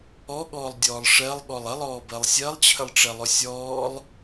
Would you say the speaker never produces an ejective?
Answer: yes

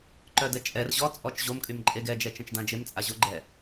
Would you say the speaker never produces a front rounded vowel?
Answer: no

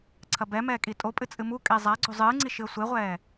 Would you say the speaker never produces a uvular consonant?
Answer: no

